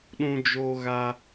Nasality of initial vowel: nasal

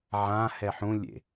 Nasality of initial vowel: nasal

